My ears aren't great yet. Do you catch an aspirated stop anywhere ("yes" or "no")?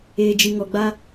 no